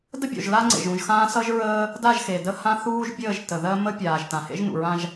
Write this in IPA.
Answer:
d ə˦ bʲ o̰˨ ʒ l a˦ ŋ͡ǀ ḛ˨ ʒ ũ˨ ʒ x ãː˦ s ʌ˦ ʒ ɹ əː˦ | d a˦˨ ʒ x e˨ d ə˦ h ã˦ θ uː˦ ʒ bʲ əː˦˨ ʒ t ə˨ ð ɜ˦ m ə˦ pʲ aː˨ ʒ t ã˨ h ḛ˦ ʒ n ṵ˨ ɹ ã˦ ʒ

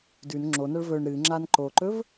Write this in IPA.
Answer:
d ʉ n ŋ͡ǁ o n ɐ ɭ v ɵ ɳ ɾ ɨ ŋ͡ǁ a n ǃ o ǃ ɵ v

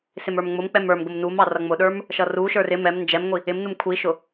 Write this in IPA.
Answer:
s ɪ m ə˞ m ŋ͡m ʊ m k͡p ɛ m ə˞ m ɡ ʊ m n u m ɑ r ʌ ŋ͡m ʊ ɗ ə˞ m | ʃ ʌ r u ʃ ə˞ r ɪ m ɛ m n d͡ʒ ɛ m ŋʷ i | ɪ m n u m kʷʰ i ʃ ʊ

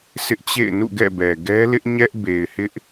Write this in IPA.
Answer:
s ɪ˦ ʔ t͡ɕ ḛ˦˨ ɪ̯ n ṵ˦˨ ɡ ɛ̰˦˨ b ɛ˨ ɡ ɛ˦ l ɪ˦ ʔ ɲ ɛ˦ ʔ b e˨ ɪ̯ h ɪ˦ ʔ

